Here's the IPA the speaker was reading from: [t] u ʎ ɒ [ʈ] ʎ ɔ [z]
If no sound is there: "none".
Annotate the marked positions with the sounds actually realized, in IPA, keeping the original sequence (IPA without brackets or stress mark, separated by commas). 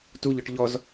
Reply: t, ʈ, z